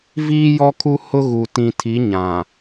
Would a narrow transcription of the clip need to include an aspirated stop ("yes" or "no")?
yes